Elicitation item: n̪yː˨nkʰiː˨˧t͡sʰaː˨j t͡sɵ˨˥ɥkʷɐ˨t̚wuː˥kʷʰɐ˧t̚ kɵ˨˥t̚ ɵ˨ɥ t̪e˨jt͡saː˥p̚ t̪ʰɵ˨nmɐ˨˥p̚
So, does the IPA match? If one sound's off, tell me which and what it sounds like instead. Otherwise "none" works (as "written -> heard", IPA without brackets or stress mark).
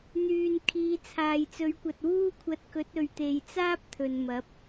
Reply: none